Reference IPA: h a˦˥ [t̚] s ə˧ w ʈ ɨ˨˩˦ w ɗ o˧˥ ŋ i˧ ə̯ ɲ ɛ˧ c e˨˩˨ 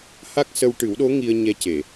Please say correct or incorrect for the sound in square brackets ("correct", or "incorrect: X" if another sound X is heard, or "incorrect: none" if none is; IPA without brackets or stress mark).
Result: incorrect: k̚